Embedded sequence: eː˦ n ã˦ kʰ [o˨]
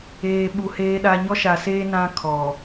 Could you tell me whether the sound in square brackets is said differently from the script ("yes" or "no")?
yes